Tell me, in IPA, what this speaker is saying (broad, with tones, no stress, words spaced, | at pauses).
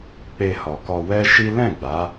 k͡pe˧hɔ˨kɔ˧ wɛ˦ ʃi˦ lɛ̃˦˨ɡ͡ba˨˦